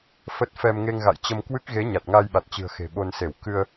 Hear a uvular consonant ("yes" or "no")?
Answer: no